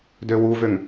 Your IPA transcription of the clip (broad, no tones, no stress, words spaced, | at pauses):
døwuvøŋ